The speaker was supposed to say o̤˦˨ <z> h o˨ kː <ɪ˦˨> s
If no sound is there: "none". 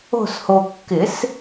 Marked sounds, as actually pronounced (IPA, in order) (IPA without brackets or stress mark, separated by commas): s, ɪ˨˩˦